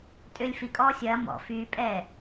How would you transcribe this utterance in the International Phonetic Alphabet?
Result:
tʼ ʏː lʲ f i kʼ ɔː sʲ ɐː m ɔ̰ f yː pʼ ɛː

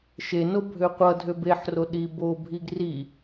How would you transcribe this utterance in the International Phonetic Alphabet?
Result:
ʃ e n o bʱ ø qʷ ʌ dʱ ø b e ħ r o ɗ i b o bʱ i ɡ r i

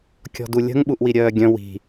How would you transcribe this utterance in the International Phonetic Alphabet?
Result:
kʲ ɔ̤ d u lʲ ə̤ ŋ ɓ u ʔ w i ɾʲ œː ɡʲ œ̃ w i̤

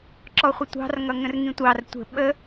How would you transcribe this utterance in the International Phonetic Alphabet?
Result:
ǁ ɔ χʷ ə tʷ ɑ̤ r ŋ ʌ ŋ ə̃ r ŋ ĩ tʷ ɑ r tʷ ə̤ ɓ ə

